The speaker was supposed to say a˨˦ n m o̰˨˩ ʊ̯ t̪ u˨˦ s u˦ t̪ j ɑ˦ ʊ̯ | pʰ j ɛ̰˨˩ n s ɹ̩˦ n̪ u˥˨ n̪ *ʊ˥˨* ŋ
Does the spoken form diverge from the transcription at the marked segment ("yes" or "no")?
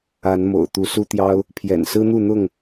no